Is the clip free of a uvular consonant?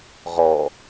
no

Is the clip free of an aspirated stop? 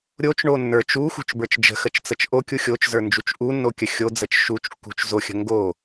yes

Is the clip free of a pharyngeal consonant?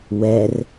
yes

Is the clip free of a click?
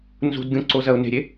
no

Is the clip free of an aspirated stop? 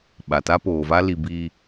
yes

